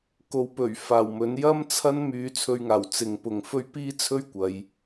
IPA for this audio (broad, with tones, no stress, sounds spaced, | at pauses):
k o˨ w p ɵ˨˩ ɥ f aː˨˩ w m ɵ˨˥ n j ɐ˥ m t͡sʰ ɐ˥ n m yː˧ t͡sʰ ɵ˧ ɥ ŋ aː˨˩ w t͡s ɪ˨ ŋ p ʊ˨ ŋ f ɵ˥ ɥ p iː˥ t͡sʰ ɵ˥ ɥ kʷ ɐ˨˧ j